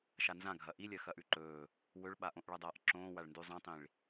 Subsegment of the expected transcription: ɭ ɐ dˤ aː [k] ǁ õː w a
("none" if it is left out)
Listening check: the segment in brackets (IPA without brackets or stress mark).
ʔ